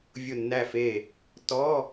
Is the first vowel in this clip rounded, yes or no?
yes